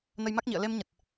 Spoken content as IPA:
nə˧jma˦˥k̚ɲḭ˧˨ə̯ le˧mɲə˨˩t̚

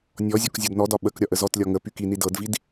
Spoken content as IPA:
nʲɔzʲɒk zʲɒdnɔdɒ ɓək ɾʲɒʔəzɔtlʲɒ ŋə pykini dɤdvid

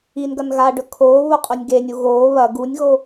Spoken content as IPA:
inɡɐn ɣaɖɵ kʰoː βoqʼonʲɡenʲu ɣoː βɐ ɡunʲɣo

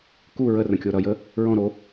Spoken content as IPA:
ku ɹərə̃kʲo ɾʌjə | ɹɔ̃ɾo

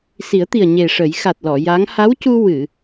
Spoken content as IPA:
si˨˩˦ə̯t̪i˨˩ə̯ ɲe˨˩ʂə˨˩˦j xa˨˩t̚lɔ˨˩˨ ja˧˥ŋ ha˧˥wcu˧ wɨ˨˩˨

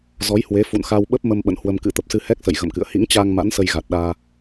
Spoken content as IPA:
zɔ˨˦jhwe˨˦fṵ˧˨nxa˧w ɓə˦˥p̚mə˧m ɓə̰˧˨nhwə˧m kɨ̰˧˥t̪ə˨˩p̚sɨ˧ hɛ˦˥k̚sə̰˧˨j ɣə̰˧˨mkɨ̰˧˨ə̯ hḭ˧˥ŋt͡ɕaː˧ŋ ma̰˧˥nsə˧jɣa˨˩t̚ ɗaː˧

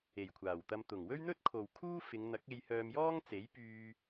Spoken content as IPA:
e˨˩jkʷʰaː˨˩wt̪ɐ˧m t̪ʊ˨˩ŋwɵ˥ɥn̪ɵ˥t̚ kʰo˨wkʰuː˥fɪ˨˧ŋ n̪ɐ˨˥k̚e˧jhœː˧mjɔː˥ŋ t͡se˨˥jpyː˧

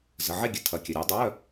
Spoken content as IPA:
zə˩˧˩ʕe˥˨ɡʲə˧˩ tʰɐ˨˦kʲə˩˧˩ ɾʲu˨˦dˤœ˧˥˧

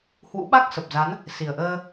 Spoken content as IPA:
hwṵ˧˥ ɓa˦˥k̚sə˨˩p̚ za˨˦n | si˨˩ə̯ʔəː˧

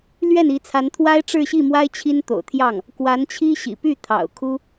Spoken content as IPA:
lɥɛ˥˩ni˧˥t͡sʰa˧˥nt̪ʰwa˥ɪ̯ ʈ͡ʂɻ̩˥˧ɕi˥˩mwa˥ɪ̯ t͡ɕʰi˥nt̪o̰˨˩ʊ̯t̪ʰjɑ˥˩ŋ | kwa˧˥nt͡ɕʰi˥ ɕḭ˨˩ py˥˩ t̪ʰɑ̰˨˩ʊ̯kʰu˥

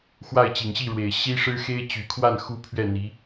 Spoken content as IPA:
xwa˥˩ɪ̯t͡ɕi˨˩ŋɕi˥˩ɻwe˨˩ɪ̯ ɕi˥ʂɻ̩˥ xe˥ɪ̯t͡ɕy˨˩kʰwa˥˩n xu˥pʰɥɛ˥˩n̪i˧˥

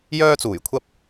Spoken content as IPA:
jœː˧t͡suː˨˩j kʷʰɐ˧p̚

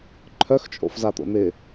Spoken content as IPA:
ǃʰœxt͡ʃʼo̰fzat̪o̰ n̪ɪ

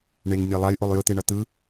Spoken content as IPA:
ɳeŋ nʲɛlˠaj ʔolˠjɯt̪eɳʌ t̪ɯ

